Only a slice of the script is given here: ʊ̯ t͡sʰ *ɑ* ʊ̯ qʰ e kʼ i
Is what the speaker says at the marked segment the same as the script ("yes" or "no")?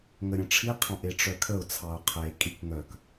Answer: yes